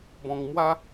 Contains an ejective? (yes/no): no